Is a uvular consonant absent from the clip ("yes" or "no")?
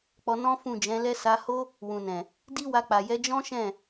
yes